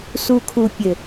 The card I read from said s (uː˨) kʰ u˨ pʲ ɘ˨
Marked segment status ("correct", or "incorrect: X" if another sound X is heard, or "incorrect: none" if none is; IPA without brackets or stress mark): incorrect: u˨